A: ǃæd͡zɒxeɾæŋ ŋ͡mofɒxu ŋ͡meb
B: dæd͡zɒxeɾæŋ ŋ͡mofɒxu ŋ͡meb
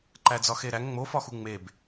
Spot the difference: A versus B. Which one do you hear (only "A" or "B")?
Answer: A